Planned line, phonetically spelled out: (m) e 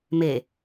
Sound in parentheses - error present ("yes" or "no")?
no